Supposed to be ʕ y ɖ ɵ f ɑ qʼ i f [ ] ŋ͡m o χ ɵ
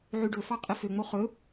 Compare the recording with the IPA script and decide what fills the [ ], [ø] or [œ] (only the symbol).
ø